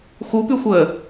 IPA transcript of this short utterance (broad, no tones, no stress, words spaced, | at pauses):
xupyxʷəː